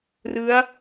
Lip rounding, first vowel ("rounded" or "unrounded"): unrounded